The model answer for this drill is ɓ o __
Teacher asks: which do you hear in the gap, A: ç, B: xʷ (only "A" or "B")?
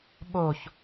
A